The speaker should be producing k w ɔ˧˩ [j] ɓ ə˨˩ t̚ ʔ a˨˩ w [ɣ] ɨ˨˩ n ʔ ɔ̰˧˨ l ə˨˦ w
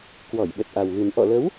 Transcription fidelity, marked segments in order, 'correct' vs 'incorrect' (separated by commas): correct, correct